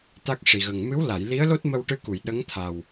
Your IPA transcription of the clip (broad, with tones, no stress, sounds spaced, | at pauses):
t̪ a˦˥ k̚ ʂ i˨˩ ɣ ə˨˩ ŋ m ɨ˧˥ w l a˨˩˨ j l i˧˥ ə̯ l o˦˥ t̚ m ə˧ w ʈ ɨ˧ k u˨˩˨ j ɗ ə˧˥ ŋ t̪ʰ a˨˩ w